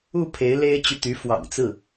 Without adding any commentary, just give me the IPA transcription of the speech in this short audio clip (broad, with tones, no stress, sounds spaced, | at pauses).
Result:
u˥˩ pʰ e˧˥ ɪ̯ l e˥ ɪ̯ t͡ɕ y˨ t̪ y˧˥ f w ɑ̰˨˩ ŋ t͡s ɹ̩˥˩